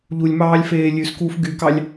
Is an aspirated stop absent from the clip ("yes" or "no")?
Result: yes